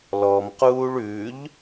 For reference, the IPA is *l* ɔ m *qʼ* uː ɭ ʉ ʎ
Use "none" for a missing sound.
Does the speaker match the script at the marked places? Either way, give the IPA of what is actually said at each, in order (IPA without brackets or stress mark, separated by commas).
l, q